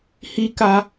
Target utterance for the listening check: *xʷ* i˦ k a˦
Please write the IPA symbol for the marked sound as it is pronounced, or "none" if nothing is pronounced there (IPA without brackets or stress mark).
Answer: h